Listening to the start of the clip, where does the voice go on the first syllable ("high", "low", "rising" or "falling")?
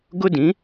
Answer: high